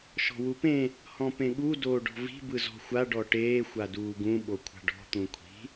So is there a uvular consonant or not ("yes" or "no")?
no